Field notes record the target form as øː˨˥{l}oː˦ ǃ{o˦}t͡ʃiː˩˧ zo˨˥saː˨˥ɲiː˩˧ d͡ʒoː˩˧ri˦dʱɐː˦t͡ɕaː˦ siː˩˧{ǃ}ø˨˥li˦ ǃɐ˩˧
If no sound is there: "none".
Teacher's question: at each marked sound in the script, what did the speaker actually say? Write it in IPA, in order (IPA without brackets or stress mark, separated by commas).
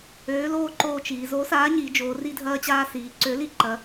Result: l, oː˦, ǀ